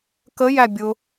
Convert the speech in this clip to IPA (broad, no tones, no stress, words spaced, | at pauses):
kəjæ bʲʊ